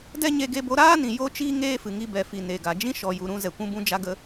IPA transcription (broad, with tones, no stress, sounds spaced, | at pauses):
d ɛ˦ ɲ e˧ ɡ e˧ b o˧ ɾ aː˦ n ĩ˨ j o˦ t͡ʃ iː˦ ŋ eː˦ f ɨ˨ ŋ i˧ b ɛ˨ f i˨ n e˨ ɡ a˨ d͡ʒ ĩ˦ ʃ ɔ˨ j u˨ ɾ ũ˧ z ɛ˨ kʷ ũ˧ b ũ˧ d͡ʒ a˧ ɡ ə˧